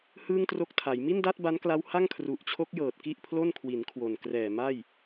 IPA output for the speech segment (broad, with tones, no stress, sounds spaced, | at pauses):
h ɯː˥˩ ŋ t r o˥˩ k̚ tʰ a˩˦ j m i˥˩ n d a˥˩ t̚ b a˦˥ n k l a˦˥ w h a˥˩ ŋ kʰ r u˨˩ ʔ t͡ɕʰ o˦˥ k̚ j ɤː˨˩ t̚ k i˥˩ ʔ pʰ l o˥˩ n kʰ w i˩˦ n kʰ w o˨˩ n k r ɛː˨˩ m a˥˩ j